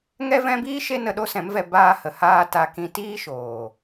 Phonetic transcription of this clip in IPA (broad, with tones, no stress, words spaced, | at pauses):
ŋɛ˦vɛ̃˦biː˦ ʃe˦nə˧ɗo˦sɛ̃˨˦m vɛ˨ baː˧ hə˨haː˧ ta˧ kĩ˧tiː˦ʃoː˨